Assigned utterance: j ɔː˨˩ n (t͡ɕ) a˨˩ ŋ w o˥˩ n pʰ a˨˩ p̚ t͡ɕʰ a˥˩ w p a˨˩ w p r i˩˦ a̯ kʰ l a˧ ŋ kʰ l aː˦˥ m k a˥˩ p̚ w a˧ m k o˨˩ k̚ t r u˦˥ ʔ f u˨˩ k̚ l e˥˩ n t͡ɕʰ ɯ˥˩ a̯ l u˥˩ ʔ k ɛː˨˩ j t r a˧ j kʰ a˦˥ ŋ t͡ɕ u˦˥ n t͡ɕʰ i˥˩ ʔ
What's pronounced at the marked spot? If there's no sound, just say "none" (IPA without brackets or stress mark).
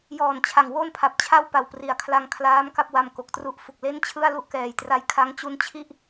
t͡ɕʰ